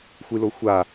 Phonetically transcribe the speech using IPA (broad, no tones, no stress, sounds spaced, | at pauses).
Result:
xʷ i l o xʷ a